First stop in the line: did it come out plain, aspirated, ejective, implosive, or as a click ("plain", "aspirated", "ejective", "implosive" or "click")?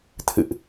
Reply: aspirated